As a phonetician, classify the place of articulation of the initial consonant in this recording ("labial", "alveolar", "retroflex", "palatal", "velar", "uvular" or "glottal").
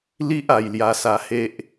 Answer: alveolar